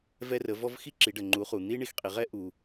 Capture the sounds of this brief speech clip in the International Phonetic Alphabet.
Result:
v ɛ˧ r ə˩˧ v ɔ˧ v x i˥ ǁ i˩˧ ɖ ə˩ ŋ͡ǃ u˩˧ χ u˩ n̪ i˥ ɳ i˧ x qʼ i˩˧ ʁ ɛ˥ ʔ u˩

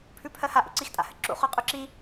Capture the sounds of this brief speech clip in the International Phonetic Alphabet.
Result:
pʰ ʉ pʰ ɜ h a ʔ ṵ ǀ i x tʼ a̰ h ɘ ǁ ṵ χ ʉ qʼ ʉ ǁ i

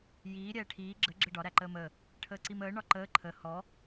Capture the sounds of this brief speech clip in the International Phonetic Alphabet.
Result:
j iː ɾʲ ɛː ʈʰ iː ɡ͡ǁ ə ɡ͡ǁ ə ɖ ɒ ɾ æ ǃ əː m əː | ʈʰ əː ǀ i m əː ɳ ɒ ǃ əː ǃʰ ə h ɔ

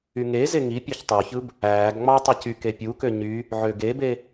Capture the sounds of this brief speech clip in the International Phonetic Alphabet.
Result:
y ŋ e z e ŋ i pʲ e ç tˤ u ç ɯ b | æː ɡ ŋ͡m ɑ tˤ ɯ c y k e pʲ u k ø ɲ y | ʕ ø ɡ e b e

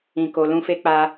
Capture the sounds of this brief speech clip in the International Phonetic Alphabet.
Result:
ĩ˧ k o˧ l ũ˦ f e˦ k͡p a˦

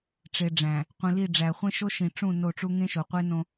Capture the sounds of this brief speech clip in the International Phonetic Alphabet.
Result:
ʈ͡ʂ e˨ ɖ͡ʐ æ̃˨ | qʷ ĩ˨ l i˦˨ ɖ͡ʐ æ˨ χʷ ẽ˦ ʃ o˦ ʃ ĩ˨ ʈ͡ʂ ũ˦˨ n o˦˨ ʈ͡ʂ u˦ ŋ ẽ˦ ʃ o˨ qʷ e˦ n õ˦

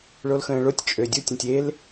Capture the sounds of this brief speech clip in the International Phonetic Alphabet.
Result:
ɭ o l x ə̃ː ɭ o tʲ t͡ʃʼ ø dʲ u tʲ ə̃ tʲ e l

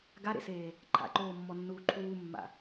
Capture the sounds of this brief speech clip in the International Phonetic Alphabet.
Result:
ɡ a ɾ ḛ s eː | ǃʰ a̰ ǃ oː mː ɔ nː uː ǃʰ uː mː a̰

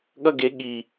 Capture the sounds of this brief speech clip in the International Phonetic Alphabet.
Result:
ɠ ʌ ɡ e ɠ i

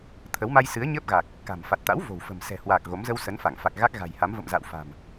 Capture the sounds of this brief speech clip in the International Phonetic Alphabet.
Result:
t̪ʰ ə˨˦ w m a˧ j s ɨ˨˦ ə̯ ɲ əː˦˥ p̚ ɣ a˨˩ k̚ | k a̤˨˩ m f a˨˩ t̚ t̪ a̰˧˥ w v o̤˨˩ w f ə̤˨˩ m s ɛ̤˨˩ h w aː˨˩ k̚ ɣ o˨˦ m z ə˧ w s ə˨˦ n f a˧˩ ŋ f a˨˩ k̚ ɣ a˦˥ k̚ ɣ a̤˨˩ j h a˨˦ m v ə̰˧˨ m z a̰˧˨ w f a̤˨˩ m

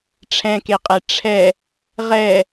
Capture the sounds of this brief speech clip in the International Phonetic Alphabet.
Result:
ʈ͡ʂʰ ɛ̃ k e qʼ ɛ ʈ͡ʂʰ ɛ | ʁ ɛ

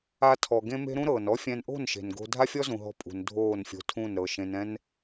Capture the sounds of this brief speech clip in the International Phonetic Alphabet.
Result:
a˦ tʰ ɔ˧ ɡ ẽ˦ m e̤˦ ɾ ũ˦ ɾ ɤː˨ n ɔ˦ fʲ ɛ̃˧ n ʔ o̤˦˨ n ʃ e̤˨ n ɡ o̤˧ dʱ a˦ fʲ ɔ˦ z ũ˨ ɦ ɔ̤˧ pʼ ṳ˨ n dʱ oː˦˨ n fʲ o̤˧ tʰ ũ˦˨ n ɾ ɤ˨ ʃ ẽ˧ n ɛ̃˦ n

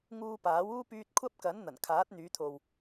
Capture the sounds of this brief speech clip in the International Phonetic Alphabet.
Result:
ŋ uː˧ p aː˨˥ w uː˥ p yː˧ t̚ kʷʰ ɐ˥ p̚ k ɐ˨˥ n n̪ ɐ˨˩ n kʰ aː˨˥ t̚ n̪ yː˨˧ t̪ʰ o˨ w

